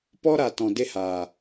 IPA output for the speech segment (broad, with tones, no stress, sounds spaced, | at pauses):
p ɔ˦ ɾ a˨ t ɔ̃˨ d e˦ h aː˨